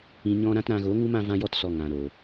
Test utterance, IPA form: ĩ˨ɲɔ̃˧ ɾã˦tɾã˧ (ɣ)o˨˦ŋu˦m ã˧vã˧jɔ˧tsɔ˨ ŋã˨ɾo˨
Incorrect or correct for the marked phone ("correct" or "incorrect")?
correct